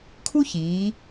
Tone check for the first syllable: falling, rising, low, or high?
high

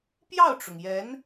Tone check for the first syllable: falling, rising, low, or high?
falling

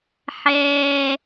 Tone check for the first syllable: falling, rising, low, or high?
low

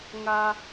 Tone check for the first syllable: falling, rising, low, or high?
high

